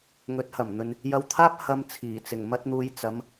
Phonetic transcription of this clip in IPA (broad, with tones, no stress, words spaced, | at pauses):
ŋɵ˨˥t̚hɐ˨˩mn̪ɵ˨n | jɐ˧wt̪ʰaː˥p̚ hɐ˧m t͡sʰiː˨˩t͡sɪ˨˩ŋmɐ˥t̚n̪uː˧j t͡sɐ˨˥m